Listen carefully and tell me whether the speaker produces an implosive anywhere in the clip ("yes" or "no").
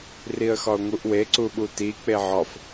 yes